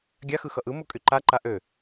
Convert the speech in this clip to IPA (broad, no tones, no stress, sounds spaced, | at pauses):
ɡʲ a x ɯ x ʌ ʔ ɯ m u kʼ y ǃ a ǃ a ʔ ø